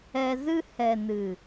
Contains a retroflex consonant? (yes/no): no